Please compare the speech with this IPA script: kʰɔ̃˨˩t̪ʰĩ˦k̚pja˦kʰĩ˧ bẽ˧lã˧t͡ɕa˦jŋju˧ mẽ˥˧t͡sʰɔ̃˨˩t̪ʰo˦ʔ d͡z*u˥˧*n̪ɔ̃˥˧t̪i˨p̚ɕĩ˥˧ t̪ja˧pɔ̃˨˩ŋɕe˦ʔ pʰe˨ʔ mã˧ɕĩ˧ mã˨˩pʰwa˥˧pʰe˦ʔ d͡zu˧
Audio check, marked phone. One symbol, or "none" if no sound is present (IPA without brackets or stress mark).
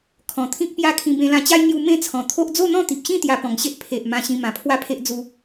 o˥˧